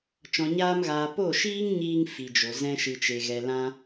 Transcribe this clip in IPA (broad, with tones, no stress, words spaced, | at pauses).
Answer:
t͡ʃɔ̃˧ɲaː˦mɣaː˧ po˦˨ʃiː˦ŋ ɲiː˦ŋ fi˧d͡ʒo˧ zɛ̃˦ʃɨ˧t͡ʃe˧ɣɛ˧ lã˦